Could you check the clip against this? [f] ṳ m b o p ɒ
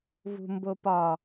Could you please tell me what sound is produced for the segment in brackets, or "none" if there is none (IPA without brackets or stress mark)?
v